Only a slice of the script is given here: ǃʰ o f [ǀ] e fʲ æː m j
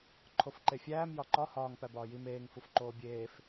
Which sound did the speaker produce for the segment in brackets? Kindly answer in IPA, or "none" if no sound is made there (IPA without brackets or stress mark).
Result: ǃ